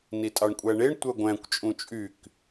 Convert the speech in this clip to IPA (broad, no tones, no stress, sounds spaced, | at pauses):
n i tʼ ɑ ɳ kʷʼ æ ɳ e ɳ tʷ œ ɡʷ æ̃ kʷ t͡ʃʼ ũ t͡ʃʼ y k